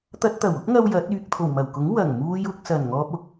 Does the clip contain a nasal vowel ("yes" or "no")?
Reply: no